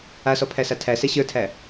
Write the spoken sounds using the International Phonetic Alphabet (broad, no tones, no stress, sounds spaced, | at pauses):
a s ɔ pʰ æ s a tʰ æ s ɛ ɕ ə˞ tʰ æ